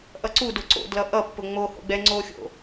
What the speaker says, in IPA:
ʔʌǀudʊ ǀo̰ dlʌʔʌpːʊ ŋ͡mo ho̰ɡ͡bɛŋ͡ǀoxʲo̰

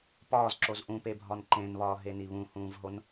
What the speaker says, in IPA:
pɒːzǁoz ʔũpebʱɒn ǃẽnβɒːɦeni βũhũːvɦon

